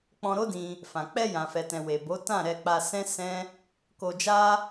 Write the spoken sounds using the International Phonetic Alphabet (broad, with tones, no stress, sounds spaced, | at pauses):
k͡p ɔ̃˧ ɾ o˦ d ĩ˧ | f ã˨ k͡p ɛ˧ j ã˨ f ɛ˨ t ɛ̃˨ w e˨ b o˨˦ t ã˦˨ ɾ ɛ˧ k͡p a˧ s ɛ̃˦ s ɛ̃˦ | k o˧ d͡ʒ a˦